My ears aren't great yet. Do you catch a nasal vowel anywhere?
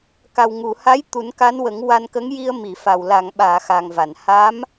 no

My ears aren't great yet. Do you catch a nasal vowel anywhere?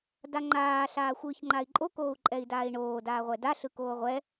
no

